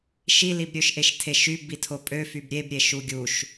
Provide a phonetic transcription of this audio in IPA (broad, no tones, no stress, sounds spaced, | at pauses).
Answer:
ʃ i l i b ɾʲ ø ʃ ʔ e ʃ tʰ e ʃ y b i tʰ o pʼ ø f y b ɾʲ e b ɾʲ e ʃ u ɡʲ u ʃ